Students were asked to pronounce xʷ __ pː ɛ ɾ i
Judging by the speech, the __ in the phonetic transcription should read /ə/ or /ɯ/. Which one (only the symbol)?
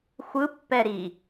ɯ